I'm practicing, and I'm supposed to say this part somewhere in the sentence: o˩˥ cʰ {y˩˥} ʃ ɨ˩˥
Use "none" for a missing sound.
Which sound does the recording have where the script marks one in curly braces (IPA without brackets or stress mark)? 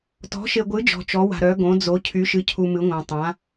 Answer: y˩˥